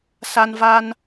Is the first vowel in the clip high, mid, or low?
low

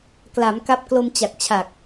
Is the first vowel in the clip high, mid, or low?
low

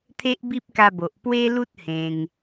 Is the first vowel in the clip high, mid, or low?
mid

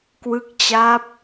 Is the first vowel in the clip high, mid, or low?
high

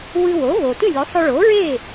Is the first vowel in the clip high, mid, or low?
high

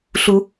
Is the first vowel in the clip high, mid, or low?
high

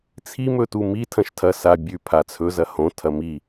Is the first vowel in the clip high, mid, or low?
high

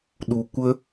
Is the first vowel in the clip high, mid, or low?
high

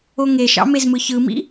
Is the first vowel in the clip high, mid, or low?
mid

